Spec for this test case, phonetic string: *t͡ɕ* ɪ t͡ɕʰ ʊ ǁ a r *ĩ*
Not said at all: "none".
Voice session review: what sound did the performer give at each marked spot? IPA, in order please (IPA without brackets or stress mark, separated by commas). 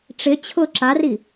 ʈ͡ʂ, i